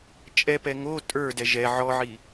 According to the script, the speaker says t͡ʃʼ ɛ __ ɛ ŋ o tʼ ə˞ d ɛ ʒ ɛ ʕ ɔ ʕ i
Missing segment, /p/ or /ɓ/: p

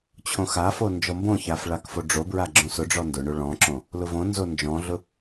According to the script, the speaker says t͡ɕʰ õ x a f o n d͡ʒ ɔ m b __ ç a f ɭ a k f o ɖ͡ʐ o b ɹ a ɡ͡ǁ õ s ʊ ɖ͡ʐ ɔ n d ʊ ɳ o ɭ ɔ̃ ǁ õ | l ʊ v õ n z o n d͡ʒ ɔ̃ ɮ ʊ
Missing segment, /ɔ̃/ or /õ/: õ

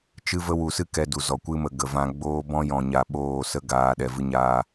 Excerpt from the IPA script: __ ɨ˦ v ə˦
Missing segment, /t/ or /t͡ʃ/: t͡ʃ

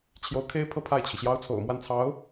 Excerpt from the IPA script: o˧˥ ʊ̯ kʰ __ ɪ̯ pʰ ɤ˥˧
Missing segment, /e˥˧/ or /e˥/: e˥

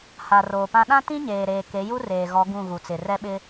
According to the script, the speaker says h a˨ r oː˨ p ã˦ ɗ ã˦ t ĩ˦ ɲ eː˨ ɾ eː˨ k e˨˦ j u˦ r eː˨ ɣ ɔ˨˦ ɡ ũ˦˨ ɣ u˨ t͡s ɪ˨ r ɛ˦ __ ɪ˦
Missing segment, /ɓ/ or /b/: ɓ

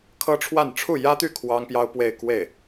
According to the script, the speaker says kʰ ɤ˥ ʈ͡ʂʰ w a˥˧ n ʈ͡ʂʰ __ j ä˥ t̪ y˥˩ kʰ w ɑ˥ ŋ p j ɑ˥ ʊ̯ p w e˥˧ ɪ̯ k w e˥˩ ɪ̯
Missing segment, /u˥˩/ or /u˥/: u˥˩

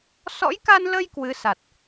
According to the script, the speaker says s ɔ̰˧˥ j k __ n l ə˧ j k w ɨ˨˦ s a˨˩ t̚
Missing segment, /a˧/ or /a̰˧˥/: a˧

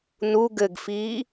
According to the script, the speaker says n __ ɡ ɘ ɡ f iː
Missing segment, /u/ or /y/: u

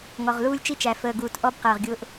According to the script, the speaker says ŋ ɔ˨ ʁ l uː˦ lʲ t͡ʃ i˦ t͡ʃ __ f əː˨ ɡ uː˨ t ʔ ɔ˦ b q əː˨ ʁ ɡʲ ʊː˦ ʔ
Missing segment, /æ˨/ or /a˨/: æ˨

